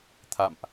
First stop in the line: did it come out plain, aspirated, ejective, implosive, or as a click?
aspirated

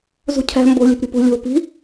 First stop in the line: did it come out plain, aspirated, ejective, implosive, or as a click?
aspirated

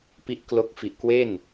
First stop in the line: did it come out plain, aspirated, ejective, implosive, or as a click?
plain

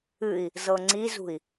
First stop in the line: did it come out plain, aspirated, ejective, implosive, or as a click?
click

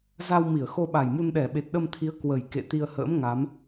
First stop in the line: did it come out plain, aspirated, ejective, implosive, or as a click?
implosive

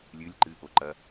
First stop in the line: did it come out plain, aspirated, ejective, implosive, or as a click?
click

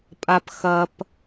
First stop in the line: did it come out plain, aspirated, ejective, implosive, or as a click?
ejective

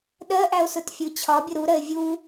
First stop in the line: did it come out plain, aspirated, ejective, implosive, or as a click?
implosive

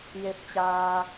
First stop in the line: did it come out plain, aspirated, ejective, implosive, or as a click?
plain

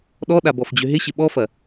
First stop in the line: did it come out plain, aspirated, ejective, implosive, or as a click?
implosive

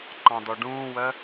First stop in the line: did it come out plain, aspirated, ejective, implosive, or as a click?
click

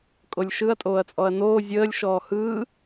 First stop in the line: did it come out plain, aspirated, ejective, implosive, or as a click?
ejective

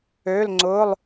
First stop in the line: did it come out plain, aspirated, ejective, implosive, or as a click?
click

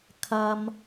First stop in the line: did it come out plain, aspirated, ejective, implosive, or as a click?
aspirated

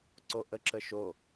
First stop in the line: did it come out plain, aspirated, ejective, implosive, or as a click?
click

